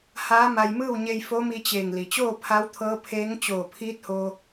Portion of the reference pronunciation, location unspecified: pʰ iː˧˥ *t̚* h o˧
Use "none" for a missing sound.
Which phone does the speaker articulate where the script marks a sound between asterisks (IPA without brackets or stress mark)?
t̚